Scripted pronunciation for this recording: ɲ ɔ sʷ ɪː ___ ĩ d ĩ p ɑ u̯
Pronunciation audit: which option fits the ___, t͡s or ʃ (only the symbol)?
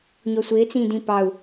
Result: t͡s